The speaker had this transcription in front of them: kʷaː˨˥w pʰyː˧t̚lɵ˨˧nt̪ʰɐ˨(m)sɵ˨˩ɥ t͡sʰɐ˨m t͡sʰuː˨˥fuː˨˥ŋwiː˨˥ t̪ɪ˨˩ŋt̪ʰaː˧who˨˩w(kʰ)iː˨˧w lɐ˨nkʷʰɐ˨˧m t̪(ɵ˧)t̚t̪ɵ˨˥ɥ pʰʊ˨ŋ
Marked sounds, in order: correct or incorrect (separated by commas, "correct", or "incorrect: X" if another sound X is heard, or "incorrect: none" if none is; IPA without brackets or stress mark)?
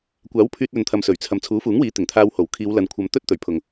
correct, correct, incorrect: ɵ˥